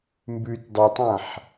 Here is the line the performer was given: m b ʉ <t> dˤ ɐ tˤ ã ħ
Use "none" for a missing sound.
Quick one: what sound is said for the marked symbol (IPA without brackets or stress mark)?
t